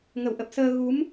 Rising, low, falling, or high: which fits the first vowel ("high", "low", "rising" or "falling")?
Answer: low